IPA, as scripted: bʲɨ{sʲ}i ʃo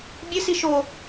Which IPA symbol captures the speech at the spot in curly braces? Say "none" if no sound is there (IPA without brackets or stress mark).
s